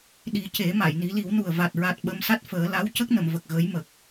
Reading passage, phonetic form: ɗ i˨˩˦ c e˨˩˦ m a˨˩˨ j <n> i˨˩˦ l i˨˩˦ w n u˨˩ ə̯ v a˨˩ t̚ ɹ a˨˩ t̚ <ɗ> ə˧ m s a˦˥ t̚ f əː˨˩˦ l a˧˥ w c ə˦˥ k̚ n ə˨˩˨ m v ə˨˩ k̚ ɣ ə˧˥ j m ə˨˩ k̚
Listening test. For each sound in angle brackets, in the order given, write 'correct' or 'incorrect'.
correct, incorrect: ɓ

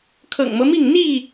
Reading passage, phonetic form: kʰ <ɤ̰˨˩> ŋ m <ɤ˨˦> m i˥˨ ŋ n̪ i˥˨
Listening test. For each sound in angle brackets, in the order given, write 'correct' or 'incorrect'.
correct, incorrect: ɤ˦

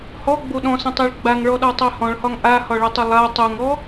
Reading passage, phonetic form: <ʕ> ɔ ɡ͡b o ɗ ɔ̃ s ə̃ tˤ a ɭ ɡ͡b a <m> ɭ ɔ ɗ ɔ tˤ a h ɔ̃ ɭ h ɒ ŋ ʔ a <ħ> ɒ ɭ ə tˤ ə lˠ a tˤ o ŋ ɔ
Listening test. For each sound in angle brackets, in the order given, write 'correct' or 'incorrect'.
incorrect: h, incorrect: ŋ, incorrect: h

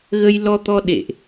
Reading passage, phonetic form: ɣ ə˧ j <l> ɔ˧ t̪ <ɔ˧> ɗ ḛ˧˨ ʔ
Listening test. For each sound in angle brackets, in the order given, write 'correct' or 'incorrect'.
correct, correct

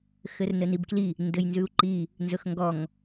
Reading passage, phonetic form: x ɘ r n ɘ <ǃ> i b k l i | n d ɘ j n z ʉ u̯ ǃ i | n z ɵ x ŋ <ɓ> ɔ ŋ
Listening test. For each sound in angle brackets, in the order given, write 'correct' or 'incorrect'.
incorrect: n, incorrect: ɡ

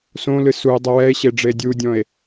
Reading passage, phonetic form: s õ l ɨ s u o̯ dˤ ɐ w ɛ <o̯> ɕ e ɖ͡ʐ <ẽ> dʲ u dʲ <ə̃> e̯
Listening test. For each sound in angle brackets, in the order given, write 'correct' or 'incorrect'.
incorrect: e̯, incorrect: e, incorrect: ɔ̃

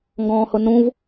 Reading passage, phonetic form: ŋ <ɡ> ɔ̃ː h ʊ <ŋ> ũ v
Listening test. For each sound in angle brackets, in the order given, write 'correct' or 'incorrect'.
correct, incorrect: n

